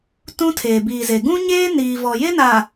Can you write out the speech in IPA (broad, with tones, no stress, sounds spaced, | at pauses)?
t ũ˦ tʰ eː˨ b iː˨ z e˨ ɡ ũ˦ ɲ eː˦ n iː˨ v ɔ˨ j e˦ n aː˨